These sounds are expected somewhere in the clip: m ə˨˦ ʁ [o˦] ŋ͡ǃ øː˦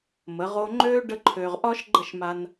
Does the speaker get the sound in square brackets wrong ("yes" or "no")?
no